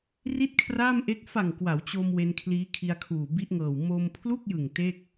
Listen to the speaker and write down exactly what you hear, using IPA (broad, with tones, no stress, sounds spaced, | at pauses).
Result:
r i˥˩ t̚ kʰ r aː˥˩ m ʔ e˦˥ k̚ f a˨˩ ŋ k w a˩˦ w t͡ɕ o˧ m w e˧ n kʰ l iː˦˥ kʰ i˧ a̯ kʰ uː˨˩ b i˦˥ ʔ ŋ ɤː˨˩ w m o˧ m pʰ l u˥˩ k̚ j ɯ˨˩ ŋ t e˥˩ k̚